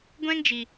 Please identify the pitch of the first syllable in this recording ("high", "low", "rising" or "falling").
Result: high